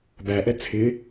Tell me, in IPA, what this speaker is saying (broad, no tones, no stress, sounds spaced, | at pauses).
b æ ʔ ɛ t͡sʰ ɪ